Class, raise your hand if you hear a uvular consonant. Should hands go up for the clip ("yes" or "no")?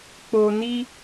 no